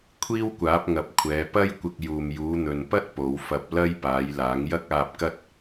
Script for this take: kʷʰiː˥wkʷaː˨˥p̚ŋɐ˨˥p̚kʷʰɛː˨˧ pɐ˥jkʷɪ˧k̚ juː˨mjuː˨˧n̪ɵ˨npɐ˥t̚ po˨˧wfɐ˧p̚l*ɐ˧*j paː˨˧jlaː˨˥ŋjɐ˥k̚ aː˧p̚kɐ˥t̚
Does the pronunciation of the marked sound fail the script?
yes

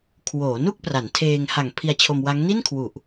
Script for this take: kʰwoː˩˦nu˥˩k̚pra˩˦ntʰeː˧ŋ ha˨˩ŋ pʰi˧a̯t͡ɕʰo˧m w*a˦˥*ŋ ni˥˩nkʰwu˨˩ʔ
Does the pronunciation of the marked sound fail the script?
no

